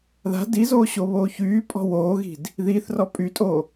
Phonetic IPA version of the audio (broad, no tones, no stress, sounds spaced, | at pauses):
ð a̤ d i z oː ɕ o β oː ç yː pʼ ɔ̤ w oː ɣ i̤ d | ð iː θ r ɔ pʼ y tʼ o